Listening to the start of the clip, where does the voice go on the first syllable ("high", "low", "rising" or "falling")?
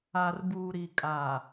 low